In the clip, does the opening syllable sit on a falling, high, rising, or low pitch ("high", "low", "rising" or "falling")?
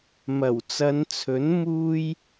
low